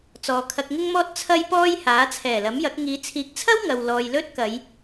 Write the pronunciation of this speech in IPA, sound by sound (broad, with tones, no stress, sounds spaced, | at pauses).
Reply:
t͡s ɔː˨ kʰ ɐ˧ k̚ ŋ ɪ˥ ŋ m ɔː˥ t̚ t͡sʰ ɐ˥ j p ɔː˥ j h aː˨˥ t͡sʰ ɛː˨˩ l ɐ˨˥ m j ɐ˨˥ k̚ ŋ iː˨˧ t͡sʰ iː˨˥ k̚ t͡sʰ ɐ˥ w ŋ ɐ˨ w l ɔː˨ j l ɵ˥ t̚ k ɐ˨˧ j